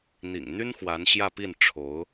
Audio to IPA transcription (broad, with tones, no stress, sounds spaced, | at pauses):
n̪ ḭ˨˩ ŋ n̪ y˥ n x w a˧˥ n ɕ j ä˥˧ p i˥˩ n ʈ͡ʂʰ o˧˥ ʊ̯